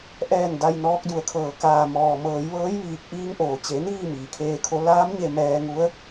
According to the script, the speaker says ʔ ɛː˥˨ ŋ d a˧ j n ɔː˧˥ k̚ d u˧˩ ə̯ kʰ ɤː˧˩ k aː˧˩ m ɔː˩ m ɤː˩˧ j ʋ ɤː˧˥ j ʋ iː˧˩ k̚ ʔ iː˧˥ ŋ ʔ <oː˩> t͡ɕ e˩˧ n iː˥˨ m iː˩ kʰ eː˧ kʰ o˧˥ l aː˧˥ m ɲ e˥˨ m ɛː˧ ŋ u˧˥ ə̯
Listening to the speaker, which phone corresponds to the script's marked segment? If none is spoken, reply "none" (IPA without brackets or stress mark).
oː˩